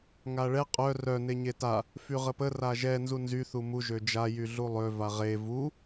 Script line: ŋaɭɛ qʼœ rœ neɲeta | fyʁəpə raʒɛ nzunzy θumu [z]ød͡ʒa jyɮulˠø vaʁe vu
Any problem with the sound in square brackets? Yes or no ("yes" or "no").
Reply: yes